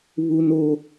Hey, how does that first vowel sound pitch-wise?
high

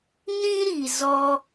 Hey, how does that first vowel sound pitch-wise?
high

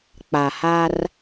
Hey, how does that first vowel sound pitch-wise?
low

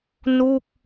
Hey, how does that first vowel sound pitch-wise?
falling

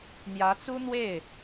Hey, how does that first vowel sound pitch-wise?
rising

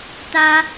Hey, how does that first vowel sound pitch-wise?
high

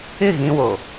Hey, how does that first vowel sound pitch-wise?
falling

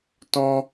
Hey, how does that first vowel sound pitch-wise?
high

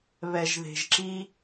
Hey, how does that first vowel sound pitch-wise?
low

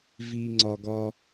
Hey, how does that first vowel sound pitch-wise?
high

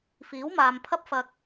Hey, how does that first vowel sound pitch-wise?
rising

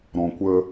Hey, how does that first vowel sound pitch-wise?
low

